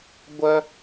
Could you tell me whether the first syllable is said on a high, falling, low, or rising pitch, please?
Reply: high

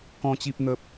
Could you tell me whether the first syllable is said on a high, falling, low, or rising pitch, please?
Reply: high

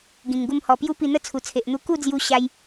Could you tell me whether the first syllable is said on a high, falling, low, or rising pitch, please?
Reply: low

